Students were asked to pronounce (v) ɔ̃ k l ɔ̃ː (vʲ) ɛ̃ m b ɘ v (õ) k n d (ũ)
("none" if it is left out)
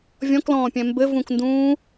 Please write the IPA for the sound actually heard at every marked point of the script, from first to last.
vʲ, pʲ, ũ, ũː

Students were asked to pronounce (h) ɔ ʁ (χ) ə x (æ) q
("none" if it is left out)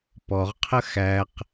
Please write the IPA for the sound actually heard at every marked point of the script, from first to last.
p, qʰ, æ

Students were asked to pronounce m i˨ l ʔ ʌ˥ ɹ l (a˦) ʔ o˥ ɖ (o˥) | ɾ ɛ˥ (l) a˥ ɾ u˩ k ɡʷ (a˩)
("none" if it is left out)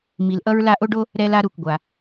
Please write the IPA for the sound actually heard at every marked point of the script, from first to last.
a˦, o˥, l, a˩

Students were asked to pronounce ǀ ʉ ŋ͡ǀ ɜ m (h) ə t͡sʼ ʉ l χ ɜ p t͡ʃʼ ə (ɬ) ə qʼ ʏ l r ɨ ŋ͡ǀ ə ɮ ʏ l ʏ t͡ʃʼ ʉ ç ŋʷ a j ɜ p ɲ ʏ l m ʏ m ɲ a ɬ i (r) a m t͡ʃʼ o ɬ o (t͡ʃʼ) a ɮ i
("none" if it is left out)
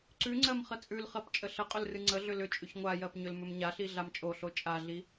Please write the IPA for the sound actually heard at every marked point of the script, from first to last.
χ, ɬ, ɮ, t͡ʃʼ

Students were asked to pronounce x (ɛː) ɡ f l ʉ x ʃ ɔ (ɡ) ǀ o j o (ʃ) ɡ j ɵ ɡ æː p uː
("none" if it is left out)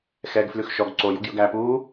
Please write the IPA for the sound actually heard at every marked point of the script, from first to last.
ɛː, ɡ, none

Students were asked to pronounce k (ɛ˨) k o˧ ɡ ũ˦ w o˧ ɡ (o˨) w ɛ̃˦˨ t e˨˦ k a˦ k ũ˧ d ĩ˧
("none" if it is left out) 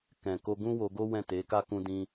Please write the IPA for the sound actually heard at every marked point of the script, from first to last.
ɛ̃˨, o˦

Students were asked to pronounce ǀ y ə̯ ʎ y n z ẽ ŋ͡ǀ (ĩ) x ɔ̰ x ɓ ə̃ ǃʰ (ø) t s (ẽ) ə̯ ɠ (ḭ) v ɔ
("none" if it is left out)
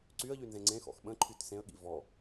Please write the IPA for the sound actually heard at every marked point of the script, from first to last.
ẽ, y, ẽ, ḭ

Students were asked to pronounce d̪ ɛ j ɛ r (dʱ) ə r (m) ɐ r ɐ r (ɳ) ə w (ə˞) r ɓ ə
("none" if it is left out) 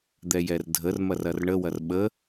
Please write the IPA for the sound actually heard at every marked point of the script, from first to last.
dʱ, m, ɳ, ɐ

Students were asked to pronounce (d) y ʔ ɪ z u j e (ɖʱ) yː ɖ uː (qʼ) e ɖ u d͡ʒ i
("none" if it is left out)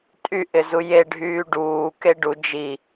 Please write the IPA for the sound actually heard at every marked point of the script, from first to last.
tʼ, ɖʱ, k

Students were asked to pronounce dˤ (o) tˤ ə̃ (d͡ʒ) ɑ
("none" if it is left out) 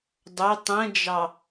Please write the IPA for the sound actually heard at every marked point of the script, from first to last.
o, d͡ʒ

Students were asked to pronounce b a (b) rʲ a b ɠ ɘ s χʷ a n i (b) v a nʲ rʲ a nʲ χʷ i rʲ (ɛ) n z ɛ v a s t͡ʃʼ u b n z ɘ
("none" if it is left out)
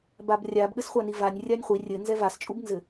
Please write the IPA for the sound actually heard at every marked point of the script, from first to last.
b, none, ɘ

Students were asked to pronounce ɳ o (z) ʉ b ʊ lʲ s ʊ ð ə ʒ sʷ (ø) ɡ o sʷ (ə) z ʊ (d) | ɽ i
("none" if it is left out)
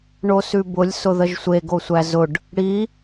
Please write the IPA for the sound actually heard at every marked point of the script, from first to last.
s, e, æ, ɖ

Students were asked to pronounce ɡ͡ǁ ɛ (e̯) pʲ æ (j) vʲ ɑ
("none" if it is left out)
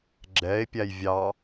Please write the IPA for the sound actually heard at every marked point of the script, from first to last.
e̯, j

